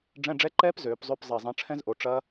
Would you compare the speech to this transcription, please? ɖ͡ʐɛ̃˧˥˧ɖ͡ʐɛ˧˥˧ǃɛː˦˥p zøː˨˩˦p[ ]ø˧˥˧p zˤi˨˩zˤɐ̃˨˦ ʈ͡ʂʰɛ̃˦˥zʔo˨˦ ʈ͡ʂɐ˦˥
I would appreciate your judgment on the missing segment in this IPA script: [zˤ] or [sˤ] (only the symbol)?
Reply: zˤ